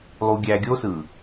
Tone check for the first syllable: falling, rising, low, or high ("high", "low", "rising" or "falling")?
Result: low